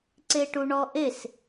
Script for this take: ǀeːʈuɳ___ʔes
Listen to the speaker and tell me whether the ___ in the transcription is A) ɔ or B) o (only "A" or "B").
A